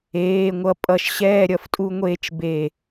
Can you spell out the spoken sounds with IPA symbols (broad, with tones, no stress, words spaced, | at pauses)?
eː˩˧˩ŋʷʌ˧˩ pʼʌ˧˩ʃɕɛː˥˨ɾʲʌ˧˩f tʼu˦ŋʷeː˦t͡ʃbe˧˩